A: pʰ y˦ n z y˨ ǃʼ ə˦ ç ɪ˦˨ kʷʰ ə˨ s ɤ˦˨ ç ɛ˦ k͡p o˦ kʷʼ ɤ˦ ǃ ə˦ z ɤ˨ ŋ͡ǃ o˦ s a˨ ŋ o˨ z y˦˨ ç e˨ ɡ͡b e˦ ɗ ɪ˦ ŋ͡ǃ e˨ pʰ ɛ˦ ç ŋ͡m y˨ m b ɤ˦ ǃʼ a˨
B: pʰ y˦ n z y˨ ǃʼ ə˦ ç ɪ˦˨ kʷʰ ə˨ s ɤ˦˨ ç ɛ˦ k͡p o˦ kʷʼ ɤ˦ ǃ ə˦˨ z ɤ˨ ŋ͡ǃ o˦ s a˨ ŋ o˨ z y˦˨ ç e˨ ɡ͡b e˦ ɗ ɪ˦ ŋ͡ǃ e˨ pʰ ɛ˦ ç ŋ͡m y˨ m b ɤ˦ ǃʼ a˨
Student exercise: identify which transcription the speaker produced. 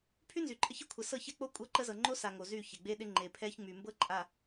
A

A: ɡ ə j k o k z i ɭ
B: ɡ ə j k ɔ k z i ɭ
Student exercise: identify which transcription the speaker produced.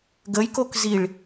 A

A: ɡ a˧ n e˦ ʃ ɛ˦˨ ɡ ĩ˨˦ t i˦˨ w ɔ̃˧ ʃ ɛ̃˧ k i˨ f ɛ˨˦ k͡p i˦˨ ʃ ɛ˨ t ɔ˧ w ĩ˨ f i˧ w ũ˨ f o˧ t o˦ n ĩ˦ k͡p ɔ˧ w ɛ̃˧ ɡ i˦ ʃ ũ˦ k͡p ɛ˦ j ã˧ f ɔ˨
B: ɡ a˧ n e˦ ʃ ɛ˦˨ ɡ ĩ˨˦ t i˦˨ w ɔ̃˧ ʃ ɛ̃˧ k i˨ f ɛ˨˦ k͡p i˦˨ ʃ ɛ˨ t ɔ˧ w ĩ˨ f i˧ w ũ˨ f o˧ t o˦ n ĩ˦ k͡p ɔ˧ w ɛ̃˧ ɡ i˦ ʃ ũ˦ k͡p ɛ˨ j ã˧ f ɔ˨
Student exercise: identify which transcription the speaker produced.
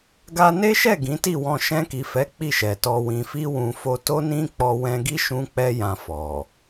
A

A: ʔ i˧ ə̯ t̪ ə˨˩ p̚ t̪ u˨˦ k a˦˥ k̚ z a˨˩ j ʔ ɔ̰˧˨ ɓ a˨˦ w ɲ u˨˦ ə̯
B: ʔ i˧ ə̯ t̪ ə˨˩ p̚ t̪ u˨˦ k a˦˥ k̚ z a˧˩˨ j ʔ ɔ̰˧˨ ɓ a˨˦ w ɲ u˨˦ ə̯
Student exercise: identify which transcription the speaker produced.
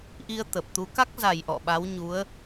A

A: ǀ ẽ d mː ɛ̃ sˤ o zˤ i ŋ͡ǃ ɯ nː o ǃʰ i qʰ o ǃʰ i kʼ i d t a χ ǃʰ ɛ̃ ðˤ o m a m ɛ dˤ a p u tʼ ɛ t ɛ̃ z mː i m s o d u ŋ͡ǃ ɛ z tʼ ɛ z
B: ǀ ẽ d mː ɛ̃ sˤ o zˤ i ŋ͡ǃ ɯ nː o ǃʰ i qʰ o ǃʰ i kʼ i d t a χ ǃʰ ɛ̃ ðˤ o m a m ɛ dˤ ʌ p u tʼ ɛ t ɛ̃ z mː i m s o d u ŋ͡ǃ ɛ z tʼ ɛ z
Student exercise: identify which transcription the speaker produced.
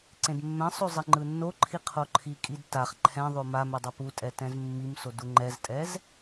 B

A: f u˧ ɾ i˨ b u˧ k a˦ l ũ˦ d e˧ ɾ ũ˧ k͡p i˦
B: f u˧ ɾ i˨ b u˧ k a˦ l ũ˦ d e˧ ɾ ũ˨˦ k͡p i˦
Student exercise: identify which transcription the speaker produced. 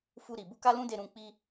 A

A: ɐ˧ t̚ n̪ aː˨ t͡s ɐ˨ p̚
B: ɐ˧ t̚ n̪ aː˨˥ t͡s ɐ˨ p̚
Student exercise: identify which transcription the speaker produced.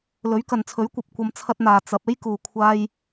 A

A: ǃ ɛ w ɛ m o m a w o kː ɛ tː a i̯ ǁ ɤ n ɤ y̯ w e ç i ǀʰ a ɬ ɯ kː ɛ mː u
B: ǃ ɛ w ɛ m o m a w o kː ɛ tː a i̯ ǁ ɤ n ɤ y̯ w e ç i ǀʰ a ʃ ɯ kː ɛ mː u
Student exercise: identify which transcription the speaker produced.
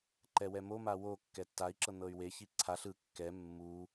A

